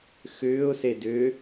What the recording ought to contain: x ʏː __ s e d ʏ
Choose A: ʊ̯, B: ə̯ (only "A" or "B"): A